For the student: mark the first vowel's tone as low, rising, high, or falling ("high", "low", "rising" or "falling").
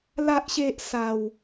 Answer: high